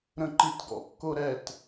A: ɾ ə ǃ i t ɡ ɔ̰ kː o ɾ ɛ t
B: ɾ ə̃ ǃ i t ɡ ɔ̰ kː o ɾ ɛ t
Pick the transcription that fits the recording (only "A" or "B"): B